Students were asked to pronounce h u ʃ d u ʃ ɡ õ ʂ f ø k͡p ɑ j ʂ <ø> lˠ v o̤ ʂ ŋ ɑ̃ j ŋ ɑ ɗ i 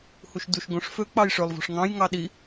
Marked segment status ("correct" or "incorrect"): correct